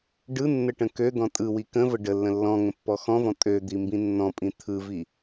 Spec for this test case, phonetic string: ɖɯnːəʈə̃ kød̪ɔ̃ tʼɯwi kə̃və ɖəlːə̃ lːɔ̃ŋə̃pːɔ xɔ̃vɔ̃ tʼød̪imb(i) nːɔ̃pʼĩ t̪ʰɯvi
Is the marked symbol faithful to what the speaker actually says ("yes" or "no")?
no